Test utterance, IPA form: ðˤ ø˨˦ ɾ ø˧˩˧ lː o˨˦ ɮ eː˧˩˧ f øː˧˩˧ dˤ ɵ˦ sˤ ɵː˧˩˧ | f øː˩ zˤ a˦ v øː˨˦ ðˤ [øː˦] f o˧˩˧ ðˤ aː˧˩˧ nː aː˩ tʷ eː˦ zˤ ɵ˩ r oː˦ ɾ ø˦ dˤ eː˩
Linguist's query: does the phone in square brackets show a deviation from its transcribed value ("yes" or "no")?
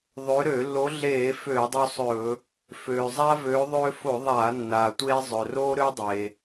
no